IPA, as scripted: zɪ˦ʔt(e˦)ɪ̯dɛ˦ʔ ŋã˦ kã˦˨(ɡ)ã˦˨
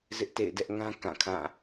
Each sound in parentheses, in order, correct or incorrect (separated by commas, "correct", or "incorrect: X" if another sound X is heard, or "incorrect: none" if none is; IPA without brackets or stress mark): incorrect: ḛ˦˨, incorrect: kʰ